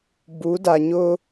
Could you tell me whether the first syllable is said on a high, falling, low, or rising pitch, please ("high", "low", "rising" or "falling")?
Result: rising